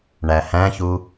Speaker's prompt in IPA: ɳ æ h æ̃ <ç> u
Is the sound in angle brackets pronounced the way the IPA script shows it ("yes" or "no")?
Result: yes